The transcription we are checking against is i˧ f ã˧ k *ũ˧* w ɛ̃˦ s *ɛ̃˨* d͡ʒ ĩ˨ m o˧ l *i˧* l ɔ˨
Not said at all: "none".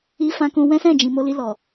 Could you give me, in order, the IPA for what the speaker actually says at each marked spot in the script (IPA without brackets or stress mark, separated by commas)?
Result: ũ˧, ɛ̃˦˨, i˧